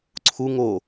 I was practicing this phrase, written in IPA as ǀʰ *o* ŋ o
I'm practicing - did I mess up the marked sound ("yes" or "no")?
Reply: yes